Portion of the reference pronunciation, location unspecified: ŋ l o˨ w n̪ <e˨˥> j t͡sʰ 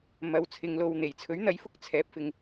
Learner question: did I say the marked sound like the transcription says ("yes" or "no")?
no